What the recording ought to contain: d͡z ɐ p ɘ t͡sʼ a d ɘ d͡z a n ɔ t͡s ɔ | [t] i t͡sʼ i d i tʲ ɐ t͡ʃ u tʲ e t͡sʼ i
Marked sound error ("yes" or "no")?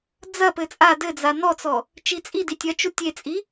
yes